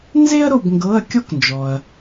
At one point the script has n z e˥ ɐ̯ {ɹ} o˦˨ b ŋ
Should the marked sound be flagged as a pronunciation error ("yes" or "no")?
yes